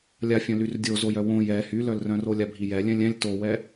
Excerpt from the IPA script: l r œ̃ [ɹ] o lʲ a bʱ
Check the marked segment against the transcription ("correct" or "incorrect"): incorrect